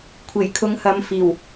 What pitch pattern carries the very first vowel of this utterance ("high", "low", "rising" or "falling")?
low